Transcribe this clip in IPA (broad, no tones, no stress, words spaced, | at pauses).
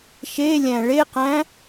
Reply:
ʃelʲæ̃ ɭeqæ̃